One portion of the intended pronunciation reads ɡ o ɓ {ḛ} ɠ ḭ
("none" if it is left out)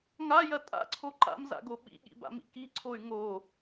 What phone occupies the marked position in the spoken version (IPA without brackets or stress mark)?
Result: ḭ